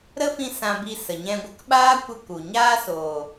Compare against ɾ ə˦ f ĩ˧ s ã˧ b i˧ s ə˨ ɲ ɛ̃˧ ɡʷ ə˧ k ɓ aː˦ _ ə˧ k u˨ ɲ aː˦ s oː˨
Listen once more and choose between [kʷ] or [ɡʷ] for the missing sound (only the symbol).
kʷ